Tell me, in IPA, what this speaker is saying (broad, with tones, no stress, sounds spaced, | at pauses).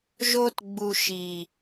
ʒ o˧ t ɡ͡b u˨ ʃ i˨